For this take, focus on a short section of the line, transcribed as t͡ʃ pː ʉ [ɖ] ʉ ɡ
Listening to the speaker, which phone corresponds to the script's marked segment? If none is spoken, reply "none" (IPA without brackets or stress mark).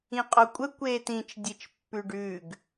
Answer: ɖ